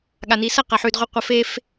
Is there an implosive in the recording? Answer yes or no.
yes